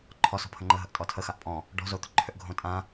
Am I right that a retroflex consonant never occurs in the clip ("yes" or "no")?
no